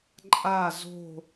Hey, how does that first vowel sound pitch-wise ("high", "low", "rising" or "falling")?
falling